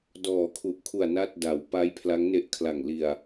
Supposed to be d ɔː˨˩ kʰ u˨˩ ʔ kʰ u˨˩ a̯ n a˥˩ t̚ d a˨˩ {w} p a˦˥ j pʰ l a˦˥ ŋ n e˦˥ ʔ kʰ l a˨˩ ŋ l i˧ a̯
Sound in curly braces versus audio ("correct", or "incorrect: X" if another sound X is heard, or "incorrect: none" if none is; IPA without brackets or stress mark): correct